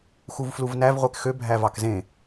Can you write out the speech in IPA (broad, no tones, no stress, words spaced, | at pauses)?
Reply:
xuvfluvnæv ʁʷekxø bʱævɑkzẽ